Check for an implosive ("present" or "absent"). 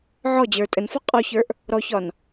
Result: absent